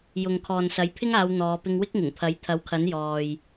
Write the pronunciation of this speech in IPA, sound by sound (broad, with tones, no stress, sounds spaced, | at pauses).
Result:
j ʊ˨ ŋ kʰ ɔː˨ n s ɐ˨˥ j pʰ ɪ˥ ŋ aː˨˧ w n̪ ɔː˨˧ p ɪ˧ ŋ w ɪ˥ k̚ ŋ ɪ˨˩ ŋ pʰ ɐ˨˥ j t̪ʰ ɐ˨˥ w kʰ ɐ˨˥ n j ɔː˨ j